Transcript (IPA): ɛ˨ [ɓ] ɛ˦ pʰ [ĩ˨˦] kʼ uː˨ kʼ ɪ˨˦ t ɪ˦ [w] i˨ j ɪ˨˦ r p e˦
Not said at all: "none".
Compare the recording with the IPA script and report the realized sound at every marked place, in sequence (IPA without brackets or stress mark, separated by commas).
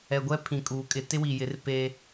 ɡʷ, ĩ˨, w